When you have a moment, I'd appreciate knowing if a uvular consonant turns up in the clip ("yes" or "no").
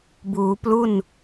no